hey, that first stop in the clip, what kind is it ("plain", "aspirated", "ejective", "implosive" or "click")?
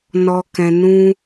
plain